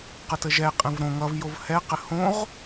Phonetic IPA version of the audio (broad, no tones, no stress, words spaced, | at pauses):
qətəʒɛ qʼɛ̃vɾõ ŋʌv jovhɛ qɘhõʁ